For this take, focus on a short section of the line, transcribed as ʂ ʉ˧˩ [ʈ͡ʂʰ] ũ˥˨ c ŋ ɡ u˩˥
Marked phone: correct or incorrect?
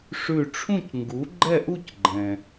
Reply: correct